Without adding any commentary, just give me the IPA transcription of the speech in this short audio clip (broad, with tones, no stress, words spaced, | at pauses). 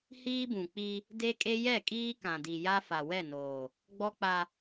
hiː˦bũ˨k͡pi˦ | de˦kʼe˦ jɛ˦˨kʼiː˦kã˨di˨ ja˦fa˨ wɛ˦˨noː˨ | ɡ͡bɔ˦k͡pa˦